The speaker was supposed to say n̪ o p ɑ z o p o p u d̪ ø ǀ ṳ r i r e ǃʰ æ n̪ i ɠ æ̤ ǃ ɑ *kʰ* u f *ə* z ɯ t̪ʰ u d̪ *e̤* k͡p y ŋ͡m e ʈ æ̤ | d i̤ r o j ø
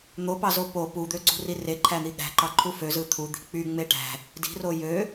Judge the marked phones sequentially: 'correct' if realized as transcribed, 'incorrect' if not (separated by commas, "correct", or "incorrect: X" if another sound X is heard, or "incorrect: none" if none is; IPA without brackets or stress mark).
incorrect: ǃʰ, incorrect: ø, incorrect: i̤